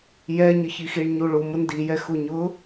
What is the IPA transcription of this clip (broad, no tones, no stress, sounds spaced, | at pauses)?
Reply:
j ɛ ɲ ə ç i x i ɳ ɲ u ɭ u m ʊ n d i j ɛ x u ɲ ʊ